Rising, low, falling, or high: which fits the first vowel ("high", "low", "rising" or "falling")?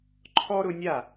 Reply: high